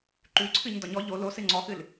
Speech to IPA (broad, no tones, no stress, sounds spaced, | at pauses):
ǃ ʉ ǀʰ ɨ ɲ d ɒ ɲ ɔ ʎ o l o s ɨ ŋ͡ǀ ɔ x ɨ l